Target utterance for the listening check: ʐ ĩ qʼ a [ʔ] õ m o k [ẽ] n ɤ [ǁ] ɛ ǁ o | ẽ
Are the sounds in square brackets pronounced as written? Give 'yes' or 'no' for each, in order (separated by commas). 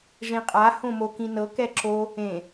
no, no, no